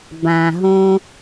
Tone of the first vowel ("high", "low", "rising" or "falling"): low